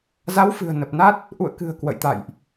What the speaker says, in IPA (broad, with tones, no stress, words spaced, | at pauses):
za˨˦wfɨ̤˨˩ə̯ nə˨˩p̚na˦˥t̚ | ʔṵ˧˨ə̯ kɨ̤˨˩ə̯ kwə̰˧˨jt̪a̰˧˨jʔ